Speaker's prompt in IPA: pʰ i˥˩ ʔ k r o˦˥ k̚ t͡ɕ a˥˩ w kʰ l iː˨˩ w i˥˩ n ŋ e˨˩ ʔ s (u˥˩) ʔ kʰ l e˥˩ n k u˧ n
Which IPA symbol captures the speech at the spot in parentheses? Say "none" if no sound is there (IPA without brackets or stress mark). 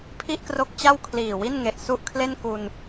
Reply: u˥˩